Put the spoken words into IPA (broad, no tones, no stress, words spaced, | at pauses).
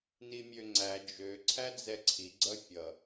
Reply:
nimʲøŋ͡ǀæ d͡ʒø ǀʰæd͡zɛǀʰi ɡ͡ǀʌfʲʌ